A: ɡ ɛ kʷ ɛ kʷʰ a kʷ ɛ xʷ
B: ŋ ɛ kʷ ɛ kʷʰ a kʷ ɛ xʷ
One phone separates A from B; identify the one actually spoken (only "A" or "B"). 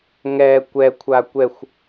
B